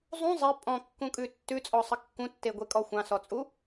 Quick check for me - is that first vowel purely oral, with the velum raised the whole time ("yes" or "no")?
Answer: no